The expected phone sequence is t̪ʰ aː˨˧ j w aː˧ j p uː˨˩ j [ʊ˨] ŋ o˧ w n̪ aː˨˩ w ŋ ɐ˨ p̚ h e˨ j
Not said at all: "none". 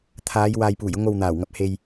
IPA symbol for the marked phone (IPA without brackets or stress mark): ʊ˥